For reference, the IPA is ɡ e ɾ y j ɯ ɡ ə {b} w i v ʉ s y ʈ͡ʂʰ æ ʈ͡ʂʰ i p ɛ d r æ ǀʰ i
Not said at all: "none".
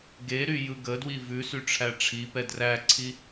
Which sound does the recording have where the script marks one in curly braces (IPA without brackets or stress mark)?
d